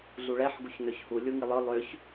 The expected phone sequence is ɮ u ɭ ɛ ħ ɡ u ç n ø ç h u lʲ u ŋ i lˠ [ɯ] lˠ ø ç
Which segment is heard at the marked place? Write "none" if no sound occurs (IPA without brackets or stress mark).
ɯ